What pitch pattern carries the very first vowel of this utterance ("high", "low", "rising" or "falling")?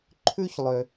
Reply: high